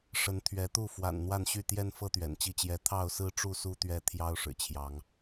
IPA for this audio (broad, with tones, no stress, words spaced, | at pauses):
ʂə˨˦nt̪ʰɥɛ˨˦t̪u˥˨ fwa̰˨˩nn̪wa˥˨n ɕy˥˨t̪jɛ˦nfɤ˦ t̪ɥɛ̰˨˩nt͡ɕi˦t͡ɕjɛ˥˨ t̪ʰɑ˥˨ʊ̯sɹ̩˦ʈ͡ʂu˥˨ su˦t̪ɥɛ˥˨t̪ʰjɑ˦ʊ̯ ʂɻ̩˨˩t͡ɕʰjɑ˨˦ŋ